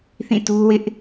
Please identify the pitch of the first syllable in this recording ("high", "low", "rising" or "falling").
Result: falling